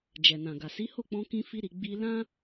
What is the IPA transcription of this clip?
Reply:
d͡ʒɛ˨nã˨ɡa˨ si˨˦ho˦˨k͡pɔ̃˧kĩ˧ fi˧ɾi˨ ɡ͡bi˧ lã˦

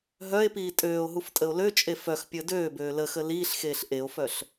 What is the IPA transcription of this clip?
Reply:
ɦœe̯piː tʼøːo̯ɦuftʼəo̯ løt͡ʃʼe fœxpʲəː døːbøː ləxə liːɬxeːɬ ʔeo̯fœɬ

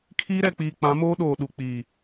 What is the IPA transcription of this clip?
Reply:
kʰiː˦ɾɛ˨k͡piː˨ k͡pã˨˦moː˦ɗoː˨ ɗu˨k͡piː˨

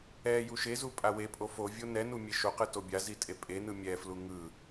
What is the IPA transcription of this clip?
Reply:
ɛ juʃezu pʼawepʼo fo vʲonɛnu mʲeʃoqɯ tobʲazi tʼepʼenɯ mʲɛflu ŋɯ

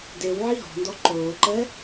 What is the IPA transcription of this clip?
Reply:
dew ʕiɦɔ̤ndɔ ǃoːǃɛ

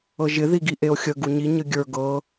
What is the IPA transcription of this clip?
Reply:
ɤʒɪ ðiɡiʔeo̯xʲə ɡuɲi ɲəɡʲə˞ ɡɤ

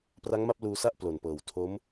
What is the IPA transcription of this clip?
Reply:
pra˦˥ŋma˥˩p̚ luː˧sa˥˩ʔ plo˨˩npɤː˨˩w tʰo˦˥m

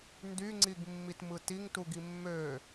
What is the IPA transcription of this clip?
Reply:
ndyŋ͡ǀiɡmːitmɯ tiŋtuɡi mːø

